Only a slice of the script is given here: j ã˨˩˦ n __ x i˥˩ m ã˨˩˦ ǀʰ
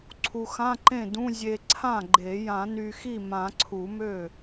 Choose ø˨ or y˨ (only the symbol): y˨